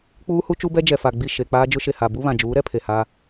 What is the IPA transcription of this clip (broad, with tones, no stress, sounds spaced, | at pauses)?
k͡p uː˦ h u˦ t͡ʃ u˦ b ɛ˦ d͡ʒ ɛ˨ f a˨ ɡ͡b i˦˨ ʃ e˨ k͡p aː˦ d͡ʒ ʊ˦ ʃ e˨ h a˨ b u˦ β ã˨ d͡ʒ uː˨˦ ɾ ɛ˦ pʰ e˨ h aː˦